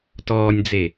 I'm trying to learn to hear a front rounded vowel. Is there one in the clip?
no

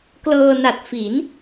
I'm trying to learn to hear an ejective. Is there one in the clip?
no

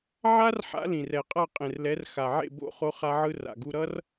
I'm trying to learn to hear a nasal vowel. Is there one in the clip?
yes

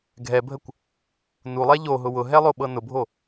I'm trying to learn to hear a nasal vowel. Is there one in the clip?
no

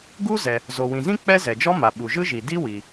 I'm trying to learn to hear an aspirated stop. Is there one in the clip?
no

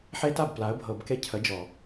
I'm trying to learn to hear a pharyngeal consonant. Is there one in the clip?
yes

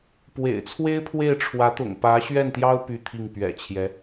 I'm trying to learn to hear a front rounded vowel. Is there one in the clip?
yes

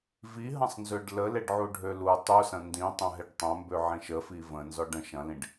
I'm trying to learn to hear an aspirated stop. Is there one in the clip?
no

